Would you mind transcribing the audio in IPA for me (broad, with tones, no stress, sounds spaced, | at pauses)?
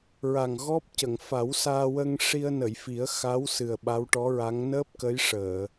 ɹ a˨˩ ŋ ɣ ɔ˦˥ p̚ c ə˨˩˨ ŋ f a˨˩˦ w s aː˧ w ə˧ ŋ ʂ i˧ ə̯ n ə˨˩˨ j f i˨˩˦ ə̯ x a˧˥ w s ɨ˨˩ ə̯ ɓ a˧˥ w ʈ ɔ˧˥ ɹ a˧˥ ŋ n əː˦˥ p̚ k ə˧˥ j ʂ əː˨˩˨